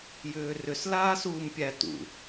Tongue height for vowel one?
high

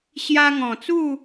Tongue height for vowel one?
low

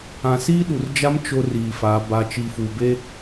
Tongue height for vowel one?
low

